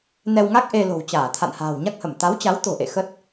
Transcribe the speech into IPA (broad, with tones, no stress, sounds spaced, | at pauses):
n ɛ˧ w ŋ a˦˥ k̚ ʔ e˧ l o̤˨˩ w t͡ɕ aː˧˩ t̪ʰ a̰˧˨ n h a̤ː˨˩ w ɲ a˦˥ k̚ h ə˧˩ m t̪ a˨˦ w t͡ɕ a˨˦ w t̪ o̤˨˩ ʔ ḛ˧˨ x ə˦˥ t̚